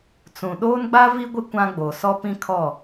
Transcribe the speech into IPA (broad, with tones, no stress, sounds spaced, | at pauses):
t͡s ũ˨ ɗ oː˦ n ɡ͡b a˦ v i˦ ɡʷ ɪ˦ kʷ ã˦ ɡ͡b o˨ s ɔ˦ p ĩ˦ kʰ ɔ˦˨